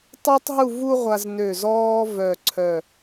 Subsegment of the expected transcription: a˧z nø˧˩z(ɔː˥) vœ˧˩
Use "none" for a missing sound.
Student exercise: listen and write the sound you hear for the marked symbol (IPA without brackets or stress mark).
ɔː˥